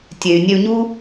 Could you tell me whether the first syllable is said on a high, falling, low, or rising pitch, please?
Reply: low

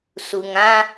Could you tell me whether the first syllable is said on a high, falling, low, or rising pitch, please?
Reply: low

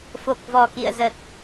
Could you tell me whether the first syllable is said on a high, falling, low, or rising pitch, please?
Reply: low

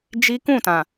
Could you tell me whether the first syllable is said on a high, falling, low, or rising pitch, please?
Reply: high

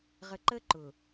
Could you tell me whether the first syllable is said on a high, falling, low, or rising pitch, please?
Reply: low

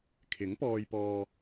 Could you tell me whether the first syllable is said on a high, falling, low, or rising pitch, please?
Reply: rising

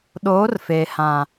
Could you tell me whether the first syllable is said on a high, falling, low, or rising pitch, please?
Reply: rising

